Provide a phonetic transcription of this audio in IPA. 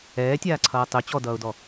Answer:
ɛː tʲ aː ǀʰ ʌː tˤ ɵ t͡ɕ ɔ d ʌː ʊ̯ d ɔ

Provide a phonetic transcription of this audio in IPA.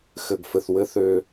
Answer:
x ɘ˩ ɡ f ɘ˩ θ w ɘ˨ θ ø˨

